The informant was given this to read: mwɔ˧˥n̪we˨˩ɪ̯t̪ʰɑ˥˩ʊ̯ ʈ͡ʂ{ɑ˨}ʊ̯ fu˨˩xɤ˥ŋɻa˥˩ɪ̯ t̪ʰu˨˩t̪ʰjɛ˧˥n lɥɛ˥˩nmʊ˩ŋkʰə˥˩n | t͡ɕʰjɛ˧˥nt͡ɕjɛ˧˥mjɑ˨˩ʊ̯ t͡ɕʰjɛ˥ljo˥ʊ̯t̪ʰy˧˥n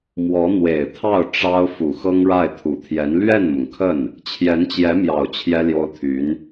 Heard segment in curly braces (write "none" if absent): ɑ˥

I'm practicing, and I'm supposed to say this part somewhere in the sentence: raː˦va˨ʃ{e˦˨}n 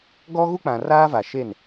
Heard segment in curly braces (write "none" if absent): e˦˨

